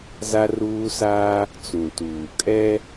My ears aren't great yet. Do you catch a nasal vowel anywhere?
yes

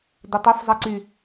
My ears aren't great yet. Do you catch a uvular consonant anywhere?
no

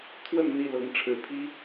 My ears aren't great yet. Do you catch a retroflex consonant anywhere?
yes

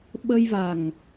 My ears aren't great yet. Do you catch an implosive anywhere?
yes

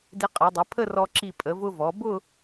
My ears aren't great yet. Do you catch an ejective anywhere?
yes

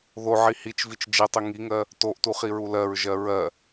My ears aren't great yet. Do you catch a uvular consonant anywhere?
yes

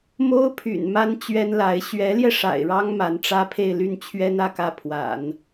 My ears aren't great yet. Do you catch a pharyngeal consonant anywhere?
no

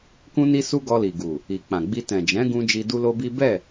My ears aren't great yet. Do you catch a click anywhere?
no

